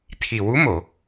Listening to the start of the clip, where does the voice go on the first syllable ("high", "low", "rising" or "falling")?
low